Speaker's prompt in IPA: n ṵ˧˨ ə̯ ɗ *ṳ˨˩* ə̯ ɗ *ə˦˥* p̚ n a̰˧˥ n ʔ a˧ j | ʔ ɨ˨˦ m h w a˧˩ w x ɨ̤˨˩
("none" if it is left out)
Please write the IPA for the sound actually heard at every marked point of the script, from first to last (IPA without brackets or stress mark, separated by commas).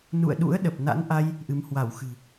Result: ṵ˧˥, ə˨˩